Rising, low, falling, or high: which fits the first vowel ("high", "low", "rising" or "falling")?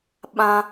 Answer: high